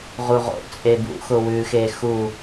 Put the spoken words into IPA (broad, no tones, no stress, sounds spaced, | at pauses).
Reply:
ʁ u ʁ o̰ t͡sʼ e b ṵ x ʊ w ʉ x e x u